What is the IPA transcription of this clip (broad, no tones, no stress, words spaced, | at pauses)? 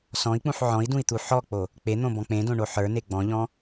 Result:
sɔ̃i̯k͡pũħ ʕɔ̃i̯dũi̯t̪u ħɔk͡po | k͡pen̪õbɔ̃ k͡pẽdõɳo ħə˞ne ɡ͡bɔ̃ʎɔ̃